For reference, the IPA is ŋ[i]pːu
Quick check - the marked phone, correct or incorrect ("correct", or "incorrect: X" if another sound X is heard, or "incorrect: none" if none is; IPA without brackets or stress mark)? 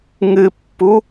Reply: incorrect: ɨ